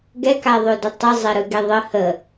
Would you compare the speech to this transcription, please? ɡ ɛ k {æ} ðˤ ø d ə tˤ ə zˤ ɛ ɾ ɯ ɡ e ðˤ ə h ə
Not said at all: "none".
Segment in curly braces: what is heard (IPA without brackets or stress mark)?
a